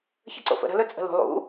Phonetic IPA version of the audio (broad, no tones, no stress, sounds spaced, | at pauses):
ç ə ǀ o̰ f ə̰ ɾ ə̤ l ɵ t͡sʼ ə̤ l ṳ lˠ ṵ